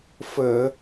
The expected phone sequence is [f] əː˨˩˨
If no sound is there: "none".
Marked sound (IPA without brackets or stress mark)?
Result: f